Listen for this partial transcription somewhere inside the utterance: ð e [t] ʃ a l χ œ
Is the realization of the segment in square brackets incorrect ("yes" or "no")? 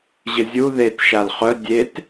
no